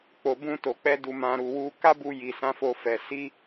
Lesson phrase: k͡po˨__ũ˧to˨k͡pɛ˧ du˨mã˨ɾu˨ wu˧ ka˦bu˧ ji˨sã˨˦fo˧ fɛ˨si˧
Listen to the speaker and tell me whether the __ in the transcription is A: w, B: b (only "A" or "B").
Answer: B